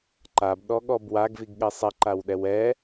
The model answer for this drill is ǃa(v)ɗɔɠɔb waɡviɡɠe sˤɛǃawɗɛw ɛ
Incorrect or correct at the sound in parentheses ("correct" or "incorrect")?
incorrect